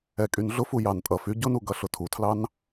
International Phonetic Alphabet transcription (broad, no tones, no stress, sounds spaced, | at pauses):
ɛ kʼ y n ɮ ʊ f u j ɑ n tʼ ʌ f y ɟ ʊ n u ɡ ʌ ɬ ʊ tʰ u tʰ l ɑ n